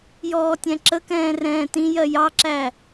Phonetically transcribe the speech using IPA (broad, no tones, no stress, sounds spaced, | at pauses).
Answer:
j ɔː tʲ æ̃ ǁ ə k ɛ̃ː r ɛ̃ː t ĩ j ɜ j ɑ ǁ æ